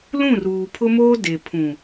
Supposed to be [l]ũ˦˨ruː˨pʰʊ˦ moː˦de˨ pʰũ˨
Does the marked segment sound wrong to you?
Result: no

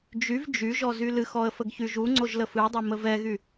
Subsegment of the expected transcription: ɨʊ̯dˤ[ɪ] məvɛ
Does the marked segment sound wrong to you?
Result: yes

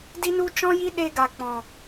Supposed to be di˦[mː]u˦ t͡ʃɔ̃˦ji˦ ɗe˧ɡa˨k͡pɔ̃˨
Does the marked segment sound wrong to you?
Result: yes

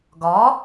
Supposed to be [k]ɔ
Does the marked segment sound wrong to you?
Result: yes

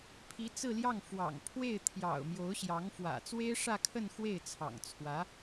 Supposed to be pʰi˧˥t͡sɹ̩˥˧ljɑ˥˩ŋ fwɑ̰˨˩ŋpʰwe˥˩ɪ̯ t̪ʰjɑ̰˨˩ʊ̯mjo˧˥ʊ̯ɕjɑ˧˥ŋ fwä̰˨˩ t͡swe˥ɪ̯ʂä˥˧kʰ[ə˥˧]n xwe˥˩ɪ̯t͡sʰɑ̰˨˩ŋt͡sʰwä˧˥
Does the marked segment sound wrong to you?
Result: no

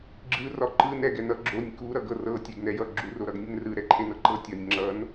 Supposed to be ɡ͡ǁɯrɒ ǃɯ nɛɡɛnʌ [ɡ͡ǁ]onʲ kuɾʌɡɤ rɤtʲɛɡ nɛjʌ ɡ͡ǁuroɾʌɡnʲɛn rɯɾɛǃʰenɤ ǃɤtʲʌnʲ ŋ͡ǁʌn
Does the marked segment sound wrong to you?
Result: no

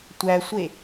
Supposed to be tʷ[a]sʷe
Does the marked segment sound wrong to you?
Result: yes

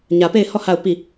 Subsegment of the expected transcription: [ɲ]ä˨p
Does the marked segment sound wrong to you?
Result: no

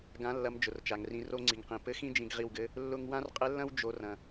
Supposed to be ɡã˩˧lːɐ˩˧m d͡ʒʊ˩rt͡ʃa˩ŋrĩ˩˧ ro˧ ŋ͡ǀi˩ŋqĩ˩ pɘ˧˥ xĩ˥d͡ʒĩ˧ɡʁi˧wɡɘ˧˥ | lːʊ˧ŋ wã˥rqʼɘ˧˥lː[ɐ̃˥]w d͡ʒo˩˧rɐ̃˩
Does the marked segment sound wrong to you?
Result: no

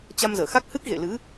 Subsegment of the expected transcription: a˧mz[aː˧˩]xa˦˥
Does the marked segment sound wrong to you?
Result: yes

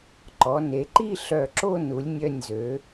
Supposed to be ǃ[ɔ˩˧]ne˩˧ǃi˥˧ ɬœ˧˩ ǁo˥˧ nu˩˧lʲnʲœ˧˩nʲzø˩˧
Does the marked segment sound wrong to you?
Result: no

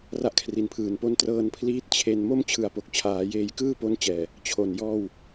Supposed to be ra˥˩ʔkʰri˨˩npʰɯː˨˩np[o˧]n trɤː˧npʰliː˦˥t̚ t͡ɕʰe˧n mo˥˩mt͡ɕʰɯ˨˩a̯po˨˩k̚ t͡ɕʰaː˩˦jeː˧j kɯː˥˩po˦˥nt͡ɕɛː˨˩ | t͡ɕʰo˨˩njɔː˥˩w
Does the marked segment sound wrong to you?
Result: yes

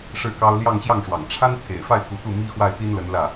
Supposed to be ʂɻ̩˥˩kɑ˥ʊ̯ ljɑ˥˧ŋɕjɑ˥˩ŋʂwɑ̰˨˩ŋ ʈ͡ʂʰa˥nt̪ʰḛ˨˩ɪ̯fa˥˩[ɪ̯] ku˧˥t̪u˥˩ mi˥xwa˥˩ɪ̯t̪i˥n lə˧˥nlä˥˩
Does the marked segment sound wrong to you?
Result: no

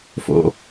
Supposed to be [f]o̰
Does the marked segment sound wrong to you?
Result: no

